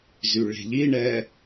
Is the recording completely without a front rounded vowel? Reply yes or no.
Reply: no